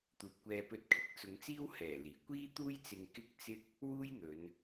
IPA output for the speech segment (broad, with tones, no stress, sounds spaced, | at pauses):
t̪ uː˨ p̚ kʷ ɛː˧ p ɵ˧ t̚ kʰ ɪ˨˥ k̚ t͡s ʊ˨˧ ŋ t͡s iː˥ w h ɛː˨˩ l iː˨˩ kʷ iː˥ t̪ uː˥ j t͡s ɪ˧ ŋ k ɪ˥ k̚ t͡s ɪ˥ k̚ | w uː˥ j n̪ ɵ˨˧ n